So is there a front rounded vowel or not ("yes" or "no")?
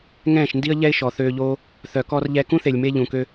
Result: yes